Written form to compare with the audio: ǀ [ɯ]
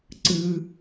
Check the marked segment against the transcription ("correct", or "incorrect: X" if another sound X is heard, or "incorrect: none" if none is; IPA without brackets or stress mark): correct